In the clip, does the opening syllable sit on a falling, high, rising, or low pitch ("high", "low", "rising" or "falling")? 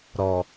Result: low